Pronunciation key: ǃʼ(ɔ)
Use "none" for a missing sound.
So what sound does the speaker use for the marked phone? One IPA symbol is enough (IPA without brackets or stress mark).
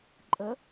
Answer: ə